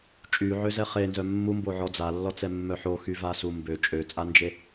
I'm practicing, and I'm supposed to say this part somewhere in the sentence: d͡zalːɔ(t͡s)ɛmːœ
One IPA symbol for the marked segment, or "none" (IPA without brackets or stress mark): t͡s